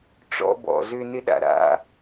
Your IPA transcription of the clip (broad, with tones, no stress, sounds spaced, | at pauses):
ʈ͡ʂ ɔ̰˧ b ɔ̰˩ z ʏ˧ n ɪ˥ ɗ a̰˩ ɾ a̰˧